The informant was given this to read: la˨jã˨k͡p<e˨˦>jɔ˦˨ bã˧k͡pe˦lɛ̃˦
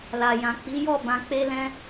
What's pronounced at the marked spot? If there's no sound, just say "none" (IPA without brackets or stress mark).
i˨˦